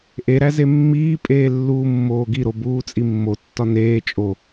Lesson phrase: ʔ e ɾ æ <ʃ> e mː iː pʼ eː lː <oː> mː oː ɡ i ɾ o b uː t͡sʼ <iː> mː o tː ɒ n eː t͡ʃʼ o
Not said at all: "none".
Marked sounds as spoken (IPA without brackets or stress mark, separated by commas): z, uː, i